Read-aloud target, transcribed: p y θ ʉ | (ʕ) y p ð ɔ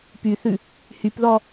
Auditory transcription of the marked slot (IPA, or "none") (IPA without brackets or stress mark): h